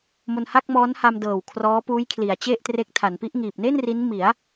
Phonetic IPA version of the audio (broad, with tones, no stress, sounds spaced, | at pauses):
m o˧ n h a˥˩ k̚ m ɔː˦˥ n h a˧ m d ɤː˨˩ w kʰ r ɔː˦˥ p uː˦˥ j kʰ l i˩˦ a̯ t͡ɕ e˥˩ ʔ t r e˦˥ k̚ tʰ a˩˦ n p i˦˥ ʔ ŋ iː˨˩ p̚ n e˥˩ n r i˦˥ n m i˩˦ a̯